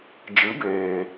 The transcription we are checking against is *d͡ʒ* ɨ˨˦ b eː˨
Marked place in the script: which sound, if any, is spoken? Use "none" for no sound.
d͡ʒ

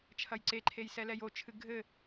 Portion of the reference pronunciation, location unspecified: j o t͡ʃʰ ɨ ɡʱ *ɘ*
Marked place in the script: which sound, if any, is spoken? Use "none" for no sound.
ɘ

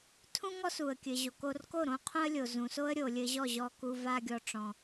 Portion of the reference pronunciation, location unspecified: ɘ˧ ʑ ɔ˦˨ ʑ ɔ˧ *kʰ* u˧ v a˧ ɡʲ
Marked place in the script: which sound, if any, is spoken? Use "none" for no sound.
k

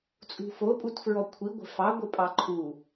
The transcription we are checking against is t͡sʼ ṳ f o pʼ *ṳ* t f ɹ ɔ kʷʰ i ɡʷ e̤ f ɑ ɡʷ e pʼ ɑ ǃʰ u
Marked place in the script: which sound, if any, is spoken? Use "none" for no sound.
u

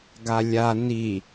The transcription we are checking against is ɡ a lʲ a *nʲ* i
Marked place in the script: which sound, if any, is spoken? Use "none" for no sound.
n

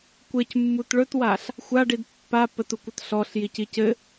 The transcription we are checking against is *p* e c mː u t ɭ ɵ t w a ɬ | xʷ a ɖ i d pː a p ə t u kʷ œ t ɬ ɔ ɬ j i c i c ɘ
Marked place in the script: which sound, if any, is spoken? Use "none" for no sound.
kʷ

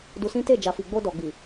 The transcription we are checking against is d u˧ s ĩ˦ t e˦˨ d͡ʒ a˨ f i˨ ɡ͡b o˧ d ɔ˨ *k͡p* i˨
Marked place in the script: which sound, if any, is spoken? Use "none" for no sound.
ɡ͡b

